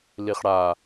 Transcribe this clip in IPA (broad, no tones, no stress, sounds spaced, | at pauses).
l i χ ɽ a